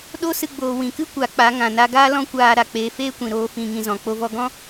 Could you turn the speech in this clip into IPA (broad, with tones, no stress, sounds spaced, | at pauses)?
ɗ o˦ s ɨ˦ ɡ͡b oː˧ w ĩ˨ k ɨ˦ kʷ a˨˦ k͡p a˨˦ ŋ ã˨ n a˧ ɡ aː˦ l ɔ̃˦ kʷ aː˧ ɾ a˨ k͡p eː˧ f eː˦ kʷ ĩ˨ ɾ oː˦ f ĩ˧ ŋ ĩ˧ z ɔ̃˨ k͡p o˦ v ɔ˦ ɡ ɔ̃˦